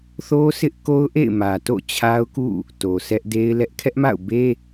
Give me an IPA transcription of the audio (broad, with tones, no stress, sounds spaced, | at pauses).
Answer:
θ o˦ s ɪ˦ ʔ k o˦ ʊ̯ ʔ ḛ˦˨ ɪ̯ m ä˨ t o̰˦˨ t͡ɕʰ a˦ ʊ̯ k ṵ˦˨ | t o˨ sʰ ɛ˦ ʔ d e˦ ɪ̯ l ɛ˦ ʔ kʰ ɛ˦ ʔ m a̰˦˨ ʊ̯ b e˦